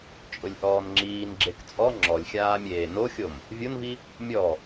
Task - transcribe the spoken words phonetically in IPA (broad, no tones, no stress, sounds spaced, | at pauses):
t͡ʃʼ ʊ lʲ ʔ ɔː n ŋ͡ǁ iː n ɡ͡ǁ e k t͡sʼ ɔ ŋ͡ǁ ɔ lʲ xʲ aː mʲ eː n o xʲ o m | vʲ o n v i | mʲ ɔ